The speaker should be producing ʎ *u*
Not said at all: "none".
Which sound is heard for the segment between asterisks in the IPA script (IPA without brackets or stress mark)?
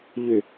ʏ